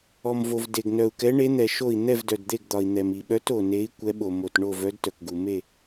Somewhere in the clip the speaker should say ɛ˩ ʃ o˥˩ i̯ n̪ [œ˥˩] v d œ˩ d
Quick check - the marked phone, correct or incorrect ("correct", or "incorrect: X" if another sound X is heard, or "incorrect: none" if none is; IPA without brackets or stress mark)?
incorrect: ɛ˥˩